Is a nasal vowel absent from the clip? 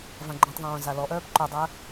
no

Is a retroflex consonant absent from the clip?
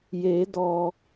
yes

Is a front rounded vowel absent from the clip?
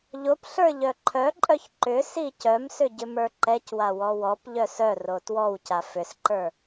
no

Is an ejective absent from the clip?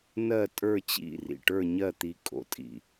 no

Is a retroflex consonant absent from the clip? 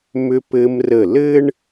no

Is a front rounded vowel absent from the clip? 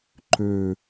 no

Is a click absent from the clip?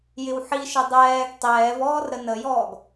yes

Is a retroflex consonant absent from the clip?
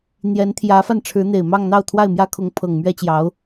no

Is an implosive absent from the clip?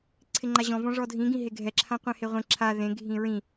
yes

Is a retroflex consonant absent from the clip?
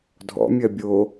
yes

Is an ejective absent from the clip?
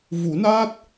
yes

